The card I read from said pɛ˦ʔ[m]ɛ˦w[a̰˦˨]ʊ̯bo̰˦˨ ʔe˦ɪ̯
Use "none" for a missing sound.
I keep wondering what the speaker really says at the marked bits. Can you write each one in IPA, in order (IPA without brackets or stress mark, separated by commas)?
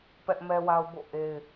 m, a˦